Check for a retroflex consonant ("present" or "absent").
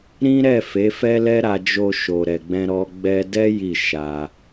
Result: absent